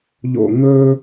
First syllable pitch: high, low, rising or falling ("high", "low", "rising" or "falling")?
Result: falling